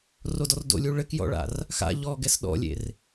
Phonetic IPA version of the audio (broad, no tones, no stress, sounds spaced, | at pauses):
r o d ɔ r d o̰ lʲ u ɭ ɘ k j ɔ̰ ɭ a̰ r | x a̰ ʎ ɔ ɡ ɛ s ɗ ɔ̰ lʲ ḛ r